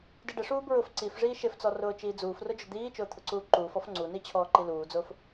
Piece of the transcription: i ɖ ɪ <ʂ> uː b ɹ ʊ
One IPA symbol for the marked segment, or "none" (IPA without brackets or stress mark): ʂ